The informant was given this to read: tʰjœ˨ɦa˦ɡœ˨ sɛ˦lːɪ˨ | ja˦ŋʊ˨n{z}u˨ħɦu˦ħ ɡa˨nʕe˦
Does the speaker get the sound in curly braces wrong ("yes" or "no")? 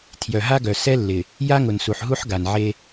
yes